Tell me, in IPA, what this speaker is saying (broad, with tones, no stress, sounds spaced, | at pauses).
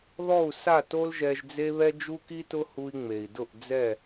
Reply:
ð ɔ˦˨ u̯ s a˦˨ t o˦ l ʒ ɛ˧ ʒ d͡z e˦ β ɛ˦ d͡ʒ u˦ k i˦ t ʊ˦ h u˧ i̯ ŋ͡m e˨ i̯ d ʊ˦˨ ʔ d͡z ɛ˦˨